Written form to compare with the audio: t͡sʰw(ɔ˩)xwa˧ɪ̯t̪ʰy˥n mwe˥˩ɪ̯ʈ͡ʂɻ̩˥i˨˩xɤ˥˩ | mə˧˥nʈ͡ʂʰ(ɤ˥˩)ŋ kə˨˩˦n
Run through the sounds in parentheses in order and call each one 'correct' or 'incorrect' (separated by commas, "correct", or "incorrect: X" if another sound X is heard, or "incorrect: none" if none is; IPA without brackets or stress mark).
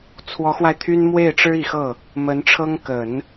incorrect: ɔ˧˥, incorrect: ɤ˥